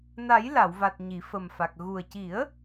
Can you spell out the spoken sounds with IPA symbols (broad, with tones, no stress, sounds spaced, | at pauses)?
n a˨˩˦ j l a˨˩˨ w v a˨˩ t̚ ɲ i˨˩˨ f ə˨˩ m f a˨˩ k̚ ɣ u˨˩ ə̯ c i˨˩˦ ə̯